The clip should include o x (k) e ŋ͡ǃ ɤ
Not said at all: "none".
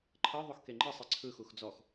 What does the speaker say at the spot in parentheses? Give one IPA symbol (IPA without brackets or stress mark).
k